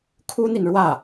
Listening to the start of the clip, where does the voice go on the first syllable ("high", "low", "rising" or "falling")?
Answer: high